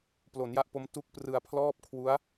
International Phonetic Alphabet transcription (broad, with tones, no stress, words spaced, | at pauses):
plo˩˦nja˦˥ʔpo˦˥m tu˥˩k̚prɯ˧a̯ pʰlɔː˥˩p̚kʰwu˦˥a̯